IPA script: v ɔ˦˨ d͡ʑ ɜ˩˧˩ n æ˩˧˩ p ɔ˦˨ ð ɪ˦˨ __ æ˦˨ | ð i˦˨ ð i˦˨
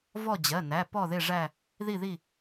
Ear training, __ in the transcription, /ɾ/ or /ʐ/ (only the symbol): ʐ